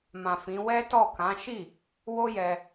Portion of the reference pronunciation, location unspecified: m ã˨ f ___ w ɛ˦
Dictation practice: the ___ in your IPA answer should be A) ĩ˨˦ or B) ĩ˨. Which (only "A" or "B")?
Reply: A